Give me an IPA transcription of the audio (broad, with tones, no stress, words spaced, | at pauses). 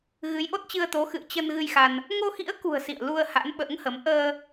ɣɨ˨˦jʔo˦˥t̚t͡ɕɨ˧ə̯t̪o˨˦ xɨ̰˧˨ə̯t͡ɕə˧n ɣɨ˧jxa˧n | ŋo˧xḭ˧˥ə̯kṳ˨˩ə̯ sḭ˧˨ə̯lu˧ə̯ ha̰˧˥nɓə̰ː˧˥ŋhə˨˦m ʔəː˧